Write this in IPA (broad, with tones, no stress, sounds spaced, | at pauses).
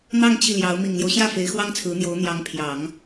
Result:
n̪ ɑ˥˧ ŋ t͡ɕ i˥˩ l j ɑ˧˥ ʊ̯ m i˨˩ ŋ l j o˦ ʊ̯ ɕ j ä˥˩ f e˧˥ ɪ̯ x w ɑ˥ ŋ t͡sʰ ɹ̩˧˥ n̪ j o˧˥ ʊ̯ n̪ j ɑ˧˥ ŋ pʰ j ɑ˨˩˦ ŋ